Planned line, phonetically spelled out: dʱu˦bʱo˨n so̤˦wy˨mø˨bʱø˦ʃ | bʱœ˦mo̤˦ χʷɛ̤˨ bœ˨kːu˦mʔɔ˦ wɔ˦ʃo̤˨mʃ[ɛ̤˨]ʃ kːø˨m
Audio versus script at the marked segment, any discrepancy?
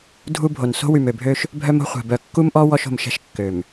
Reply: yes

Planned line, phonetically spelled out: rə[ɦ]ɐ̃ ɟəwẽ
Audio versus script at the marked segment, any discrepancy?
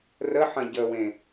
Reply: yes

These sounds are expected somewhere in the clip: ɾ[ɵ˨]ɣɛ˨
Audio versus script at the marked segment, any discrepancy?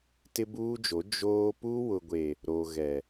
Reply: yes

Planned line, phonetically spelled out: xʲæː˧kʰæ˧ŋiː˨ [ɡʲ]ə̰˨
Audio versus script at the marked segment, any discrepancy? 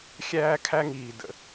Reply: yes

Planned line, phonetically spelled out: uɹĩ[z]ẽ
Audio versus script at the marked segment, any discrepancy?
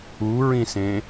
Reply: yes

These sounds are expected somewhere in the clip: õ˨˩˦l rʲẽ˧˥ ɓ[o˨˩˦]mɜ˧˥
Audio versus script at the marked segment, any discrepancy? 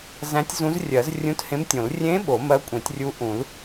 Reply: no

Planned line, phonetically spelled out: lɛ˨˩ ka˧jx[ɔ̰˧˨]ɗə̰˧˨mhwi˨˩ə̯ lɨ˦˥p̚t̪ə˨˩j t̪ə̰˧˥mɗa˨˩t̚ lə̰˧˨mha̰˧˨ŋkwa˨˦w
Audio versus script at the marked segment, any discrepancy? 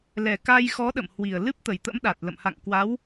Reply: yes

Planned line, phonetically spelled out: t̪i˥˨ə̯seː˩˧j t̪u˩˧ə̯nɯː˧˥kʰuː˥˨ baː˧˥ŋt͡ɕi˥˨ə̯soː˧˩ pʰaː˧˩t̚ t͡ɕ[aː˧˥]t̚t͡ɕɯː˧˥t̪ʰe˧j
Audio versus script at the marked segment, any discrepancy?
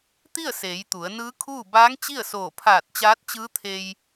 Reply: no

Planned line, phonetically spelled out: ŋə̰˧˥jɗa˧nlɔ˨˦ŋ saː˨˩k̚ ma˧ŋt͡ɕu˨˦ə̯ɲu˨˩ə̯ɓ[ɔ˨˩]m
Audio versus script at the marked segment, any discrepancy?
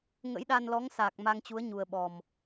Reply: no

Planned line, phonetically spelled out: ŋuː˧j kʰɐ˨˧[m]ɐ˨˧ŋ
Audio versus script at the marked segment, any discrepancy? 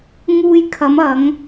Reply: no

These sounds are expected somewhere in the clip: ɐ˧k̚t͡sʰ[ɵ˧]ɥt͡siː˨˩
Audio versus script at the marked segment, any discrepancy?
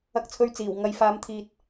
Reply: no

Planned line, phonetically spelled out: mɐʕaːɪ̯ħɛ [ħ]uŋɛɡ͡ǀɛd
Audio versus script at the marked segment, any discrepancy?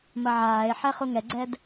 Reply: yes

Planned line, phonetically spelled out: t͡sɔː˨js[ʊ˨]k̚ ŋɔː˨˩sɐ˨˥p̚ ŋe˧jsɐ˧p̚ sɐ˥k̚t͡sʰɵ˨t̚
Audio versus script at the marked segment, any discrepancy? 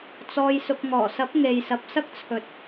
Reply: no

